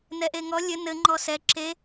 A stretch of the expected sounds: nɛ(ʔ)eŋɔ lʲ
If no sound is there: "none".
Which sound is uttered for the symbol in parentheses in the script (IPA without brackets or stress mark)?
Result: ʔ